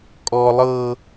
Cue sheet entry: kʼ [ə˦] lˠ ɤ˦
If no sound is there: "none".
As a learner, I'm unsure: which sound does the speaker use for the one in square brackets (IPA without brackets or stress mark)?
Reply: ɔ˦